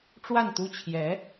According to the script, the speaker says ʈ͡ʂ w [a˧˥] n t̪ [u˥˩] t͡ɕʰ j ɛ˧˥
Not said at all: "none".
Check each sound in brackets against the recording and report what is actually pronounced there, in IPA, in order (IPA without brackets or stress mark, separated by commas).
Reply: a˥˩, u˥